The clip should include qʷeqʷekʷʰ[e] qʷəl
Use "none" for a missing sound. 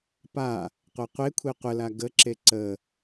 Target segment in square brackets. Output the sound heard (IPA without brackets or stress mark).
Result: e